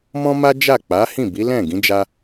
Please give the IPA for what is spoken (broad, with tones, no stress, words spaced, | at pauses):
mɔ̃˦ma˦d͡ʒa˦˨ k͡pa˨˦hĩ˦˨bi˨˦lɛ̃˦˨ ɡĩ˨˦d͡ʒa˧